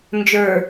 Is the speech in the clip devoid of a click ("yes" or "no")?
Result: yes